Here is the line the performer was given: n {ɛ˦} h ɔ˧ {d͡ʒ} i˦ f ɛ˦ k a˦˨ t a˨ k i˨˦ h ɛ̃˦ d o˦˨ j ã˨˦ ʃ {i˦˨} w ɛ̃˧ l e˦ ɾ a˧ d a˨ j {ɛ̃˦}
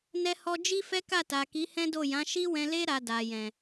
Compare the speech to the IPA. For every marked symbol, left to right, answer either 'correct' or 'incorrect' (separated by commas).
incorrect, correct, incorrect, incorrect